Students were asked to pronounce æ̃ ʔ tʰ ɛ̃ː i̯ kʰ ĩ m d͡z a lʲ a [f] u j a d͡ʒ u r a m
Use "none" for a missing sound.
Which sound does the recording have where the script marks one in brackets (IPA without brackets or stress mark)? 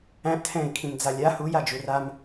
h